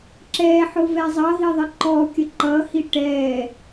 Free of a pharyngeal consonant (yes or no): no